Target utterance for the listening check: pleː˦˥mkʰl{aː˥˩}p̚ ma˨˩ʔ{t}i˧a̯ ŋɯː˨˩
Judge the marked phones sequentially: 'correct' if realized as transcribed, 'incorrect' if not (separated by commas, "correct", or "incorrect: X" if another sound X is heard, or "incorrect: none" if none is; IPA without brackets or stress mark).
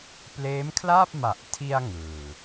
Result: correct, incorrect: tʰ